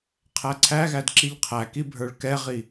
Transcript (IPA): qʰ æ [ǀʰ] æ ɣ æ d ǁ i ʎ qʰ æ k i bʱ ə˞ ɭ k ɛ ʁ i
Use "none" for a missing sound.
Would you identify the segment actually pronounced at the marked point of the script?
ǀʰ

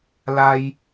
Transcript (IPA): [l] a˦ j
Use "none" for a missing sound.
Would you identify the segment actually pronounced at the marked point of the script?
l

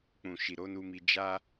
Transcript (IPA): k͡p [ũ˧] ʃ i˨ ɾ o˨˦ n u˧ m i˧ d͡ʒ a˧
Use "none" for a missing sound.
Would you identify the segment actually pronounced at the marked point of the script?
ũ˨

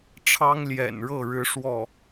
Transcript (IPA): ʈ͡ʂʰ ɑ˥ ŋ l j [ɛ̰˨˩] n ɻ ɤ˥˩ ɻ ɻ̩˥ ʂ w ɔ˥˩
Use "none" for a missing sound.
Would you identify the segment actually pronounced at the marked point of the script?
ɛ̰˨˩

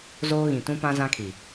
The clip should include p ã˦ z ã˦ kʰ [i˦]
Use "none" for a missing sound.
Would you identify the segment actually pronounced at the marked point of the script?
i˨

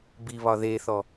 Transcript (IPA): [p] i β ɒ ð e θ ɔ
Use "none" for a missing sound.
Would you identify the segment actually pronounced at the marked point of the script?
b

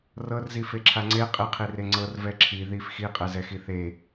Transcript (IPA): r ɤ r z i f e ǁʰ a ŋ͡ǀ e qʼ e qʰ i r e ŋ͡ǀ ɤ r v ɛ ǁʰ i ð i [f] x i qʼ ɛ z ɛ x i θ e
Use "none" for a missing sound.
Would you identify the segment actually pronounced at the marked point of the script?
f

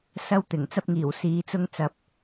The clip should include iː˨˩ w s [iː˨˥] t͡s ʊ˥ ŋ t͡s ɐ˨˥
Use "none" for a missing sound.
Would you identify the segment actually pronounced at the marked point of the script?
iː˨˥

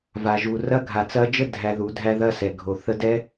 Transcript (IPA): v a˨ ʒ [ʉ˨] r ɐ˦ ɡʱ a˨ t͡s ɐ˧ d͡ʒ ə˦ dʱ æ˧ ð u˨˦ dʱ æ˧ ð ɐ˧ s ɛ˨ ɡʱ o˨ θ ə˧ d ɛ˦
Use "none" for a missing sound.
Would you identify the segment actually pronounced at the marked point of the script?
u˨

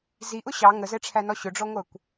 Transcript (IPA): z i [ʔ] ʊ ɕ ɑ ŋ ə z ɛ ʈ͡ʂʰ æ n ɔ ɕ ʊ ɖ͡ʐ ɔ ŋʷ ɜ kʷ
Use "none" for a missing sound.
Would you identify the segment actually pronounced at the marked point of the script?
ʔ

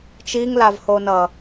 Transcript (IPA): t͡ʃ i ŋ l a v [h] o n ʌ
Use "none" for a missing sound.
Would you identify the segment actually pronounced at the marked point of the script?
h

